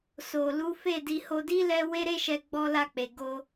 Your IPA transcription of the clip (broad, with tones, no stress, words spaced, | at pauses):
so˨lu˨˦ fe˦˨ di˧ho˧di˦ lɛ˧ we˦ɾe˦ʃɛ˧ ɡ͡bɔ˧ la˧k͡pe˨ ɡo˧